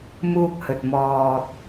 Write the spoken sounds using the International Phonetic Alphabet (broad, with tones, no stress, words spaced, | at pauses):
muː˧k̚hɵ˨t̚ mɔː˨t̚